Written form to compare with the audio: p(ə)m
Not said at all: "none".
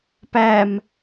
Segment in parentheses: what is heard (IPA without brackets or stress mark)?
æ